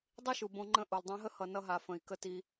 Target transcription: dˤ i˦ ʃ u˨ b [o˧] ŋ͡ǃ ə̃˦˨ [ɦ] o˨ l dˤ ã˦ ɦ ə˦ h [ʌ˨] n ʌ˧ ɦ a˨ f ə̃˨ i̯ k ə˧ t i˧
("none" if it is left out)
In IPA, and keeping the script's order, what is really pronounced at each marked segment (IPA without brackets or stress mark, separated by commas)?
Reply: õ˧, ʔ, ʌ˨